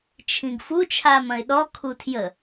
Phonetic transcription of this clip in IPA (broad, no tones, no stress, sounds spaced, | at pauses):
t͡ʃʰ ĩ ɡ f u t͡ʃʰ aː m ɐ̃ ɪ̯ ɗ ɔ kʰ u tʰ j ə